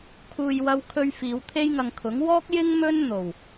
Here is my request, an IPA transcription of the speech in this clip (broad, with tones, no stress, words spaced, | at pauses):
kʰuː˨jwɐ˧wkʰɵ˧ɥ fiː˨˧wt̪ʰe˥jŋɐ˧ŋkʰʊ˨˥ŋ wɔː˥k̚jɪ˥ŋ mɵ˥n n̪o˨˩w